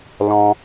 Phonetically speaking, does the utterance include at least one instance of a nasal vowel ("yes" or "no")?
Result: yes